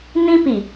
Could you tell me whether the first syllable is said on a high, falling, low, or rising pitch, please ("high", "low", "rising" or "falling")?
high